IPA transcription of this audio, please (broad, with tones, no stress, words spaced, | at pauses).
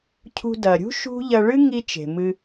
cʰṳ˧dɐ˩ɾʲṳ˥ ʃṳ˥ ʎɐ˧ɭɨ˥ŋi˧ t͡ʃe̤˩mɨ˧